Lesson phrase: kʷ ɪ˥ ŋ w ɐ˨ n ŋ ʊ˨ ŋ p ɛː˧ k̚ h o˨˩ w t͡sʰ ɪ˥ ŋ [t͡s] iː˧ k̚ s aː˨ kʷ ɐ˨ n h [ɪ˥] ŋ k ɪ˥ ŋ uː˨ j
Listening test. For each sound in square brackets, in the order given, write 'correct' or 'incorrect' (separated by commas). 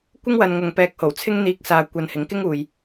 incorrect, incorrect